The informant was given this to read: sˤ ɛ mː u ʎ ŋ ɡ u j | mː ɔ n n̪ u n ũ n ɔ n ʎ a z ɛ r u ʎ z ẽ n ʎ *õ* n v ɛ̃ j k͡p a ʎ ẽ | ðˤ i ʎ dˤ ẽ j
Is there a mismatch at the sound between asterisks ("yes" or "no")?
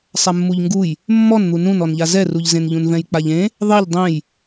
yes